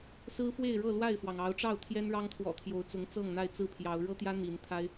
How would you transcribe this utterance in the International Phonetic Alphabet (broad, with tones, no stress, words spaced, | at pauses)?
sɹ̩˦fwe˥˨ɪ̯ɻɤ˥˨ lwa˥˨ɪ̯fwɑ˩ŋɑ˨˦ʊ̯ʈ͡ʂɑ˥˨ʊ̯ t̪ʰjɛ˦nɻɑ˦ŋt̪ʰwɔ̰˨˩t̪ʰjo˨˦ʊ̯ t͡sʊ˨˦ŋt͡sɤ˥˨ŋ n̪a˥˨ɪ̯t͡sɹ̩˥˨pʰjɑ˨˦ʊ̯ ɻɤ˦t̪jä˦ n̪i˨˦nt̪ʰa˦ɪ̯